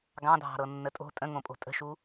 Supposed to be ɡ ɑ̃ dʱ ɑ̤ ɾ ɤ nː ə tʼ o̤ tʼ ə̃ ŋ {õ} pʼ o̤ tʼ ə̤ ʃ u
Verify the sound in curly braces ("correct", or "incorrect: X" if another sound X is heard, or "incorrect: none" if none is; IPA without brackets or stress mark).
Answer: correct